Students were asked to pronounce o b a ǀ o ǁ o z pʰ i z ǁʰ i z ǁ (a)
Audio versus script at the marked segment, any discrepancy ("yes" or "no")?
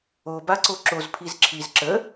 yes